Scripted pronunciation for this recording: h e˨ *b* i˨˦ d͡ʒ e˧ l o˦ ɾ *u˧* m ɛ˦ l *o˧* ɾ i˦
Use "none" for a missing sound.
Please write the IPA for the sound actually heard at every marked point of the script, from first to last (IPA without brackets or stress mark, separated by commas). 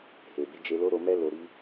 b, o˧, o˧